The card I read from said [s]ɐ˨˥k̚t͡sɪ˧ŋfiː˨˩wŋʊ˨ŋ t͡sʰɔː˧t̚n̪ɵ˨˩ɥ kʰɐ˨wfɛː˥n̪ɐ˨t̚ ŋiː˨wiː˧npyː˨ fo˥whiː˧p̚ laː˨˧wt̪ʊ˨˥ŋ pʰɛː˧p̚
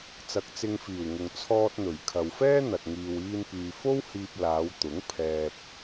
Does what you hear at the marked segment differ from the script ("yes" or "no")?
yes